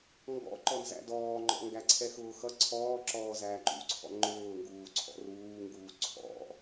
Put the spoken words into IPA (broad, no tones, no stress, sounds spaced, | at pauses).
ŋ ɡ ɔ̰ ǃ ɔ n z æ̰ d ɔː ŋ͡ǃ ɔ̰ ŋ ɡ æ ǀʰ ɛ x ʊː x ʌ ǀʰ ɔː ǁ ɔː z æː ǃ ṵ ǀʰ ɔ̰ ŋ͡ǃ ʊː ŋ ɡ uː ǀʰ ɔ̰ r uː ŋ ɡ uː ǀʰ ɔ̰